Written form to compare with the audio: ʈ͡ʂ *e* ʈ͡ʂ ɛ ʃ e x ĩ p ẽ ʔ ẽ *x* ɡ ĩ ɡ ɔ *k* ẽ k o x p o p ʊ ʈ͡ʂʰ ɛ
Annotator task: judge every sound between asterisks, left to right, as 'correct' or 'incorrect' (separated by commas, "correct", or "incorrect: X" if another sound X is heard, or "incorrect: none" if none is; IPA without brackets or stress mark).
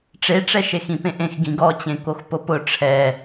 correct, correct, incorrect: t͡ɕ